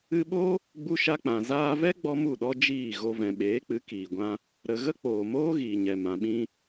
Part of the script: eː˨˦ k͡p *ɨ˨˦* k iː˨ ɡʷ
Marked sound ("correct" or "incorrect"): correct